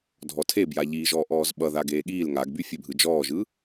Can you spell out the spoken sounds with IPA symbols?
dʱɔtʰebja ʎiːʒɔːʔɔːzɓʌ ðaɡeːɠiːl ŋaɡby fʲebʱɯd͡ʒɔːʒɯ

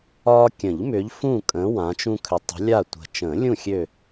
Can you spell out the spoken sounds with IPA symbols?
ɒː˦ kʲə̃˨˩˦ʎ mʏː˨˦ʎfũː˦˨kʼə̃ː˨˦ wã˨˦t͡ʃũ˦kʰʏ˨˦ tˤə̤˨˦lʲa˦˨tʷə̤˨˩ t͡ʃə̃ː˨˩˦lʲũ˦˨ xʲø˦˨

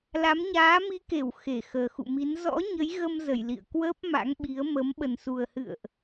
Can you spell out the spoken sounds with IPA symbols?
la˨˦mɲaː˨˦ mi˨˦ ke˧˩w xe˧˩ xəː˨˩xṵ˧˨mi˨˦n zɔ̰˧˥ ɲə˨˦jɣə˧mzə˧˩j lḭ˧˨ə̯kwəː˦˥p̚ma̰˧˥ŋɓi˨˦ə̯ mə˨˦m ɓə˨˩nsu˨˩ə̯hɨ̰˧˨ə̯ʔ

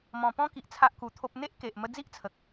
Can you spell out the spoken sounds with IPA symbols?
mɔ̃˧pɔ̃˦ki˨ʔ t͡sʰa˦ʔku˧t̪ʰo˦p̚ n̪e˦ʔke˨ʔ mə˧ d͡zi˦ʔt͡sʰə˨k̚

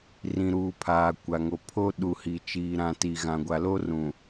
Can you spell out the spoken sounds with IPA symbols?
rĩ˨ɾuː˨ pʰaː˨kʷa˨ŋo˨ pʰo˦ ɗu˨hi˨t͡ʃiː˨ ɾã˨ ti˨ɣã˨ ɡʷa˨lo˦rũ˨

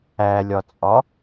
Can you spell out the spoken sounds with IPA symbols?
ælʲɒt͡sʼɒ

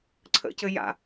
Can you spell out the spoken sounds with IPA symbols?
ǀʰə̰cɘ ja̰

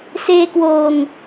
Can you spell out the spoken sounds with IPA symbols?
seː˧kwoː˨˩ŋ

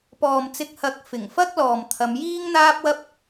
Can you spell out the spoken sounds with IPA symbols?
pɔː˨m t͡sɪ˧k̚hɐ˨˥k̚ fɪ˨˩ŋfɐ˥k̚lɔː˨m t̪ʰɐ˨˧mjiː˥ŋn̪aː˥p̚wɐ˥p̚

